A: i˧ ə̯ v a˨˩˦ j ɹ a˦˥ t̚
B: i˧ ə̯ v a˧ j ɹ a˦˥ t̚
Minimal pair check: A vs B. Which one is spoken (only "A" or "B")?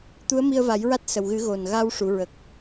A